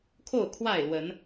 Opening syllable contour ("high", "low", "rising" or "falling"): falling